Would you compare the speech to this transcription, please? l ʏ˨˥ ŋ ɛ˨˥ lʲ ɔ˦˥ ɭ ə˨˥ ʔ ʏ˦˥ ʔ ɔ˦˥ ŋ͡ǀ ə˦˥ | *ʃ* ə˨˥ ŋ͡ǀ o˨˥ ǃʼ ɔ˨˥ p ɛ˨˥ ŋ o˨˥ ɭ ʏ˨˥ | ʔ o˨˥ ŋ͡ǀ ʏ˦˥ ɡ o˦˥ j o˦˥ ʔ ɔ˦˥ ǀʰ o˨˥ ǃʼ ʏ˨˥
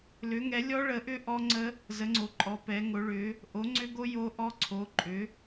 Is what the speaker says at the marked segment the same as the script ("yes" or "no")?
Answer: no